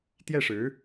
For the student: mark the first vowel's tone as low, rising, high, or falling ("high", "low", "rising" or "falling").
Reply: falling